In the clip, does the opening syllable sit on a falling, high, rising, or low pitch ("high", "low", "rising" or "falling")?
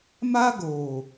high